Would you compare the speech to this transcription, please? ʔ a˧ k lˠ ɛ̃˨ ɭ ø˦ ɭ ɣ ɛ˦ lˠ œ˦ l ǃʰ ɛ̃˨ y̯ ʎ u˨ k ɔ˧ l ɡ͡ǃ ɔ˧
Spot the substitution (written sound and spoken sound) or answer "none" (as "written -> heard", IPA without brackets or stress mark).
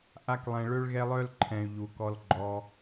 none